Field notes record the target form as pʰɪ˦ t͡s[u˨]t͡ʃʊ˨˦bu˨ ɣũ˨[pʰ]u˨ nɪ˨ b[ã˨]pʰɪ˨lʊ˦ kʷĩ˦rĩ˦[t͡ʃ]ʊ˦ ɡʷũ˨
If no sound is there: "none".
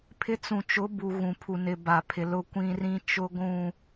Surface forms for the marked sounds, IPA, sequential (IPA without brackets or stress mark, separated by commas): ũ˨, pʰ, a˨, t͡ʃ